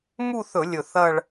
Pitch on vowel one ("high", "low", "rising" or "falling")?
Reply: falling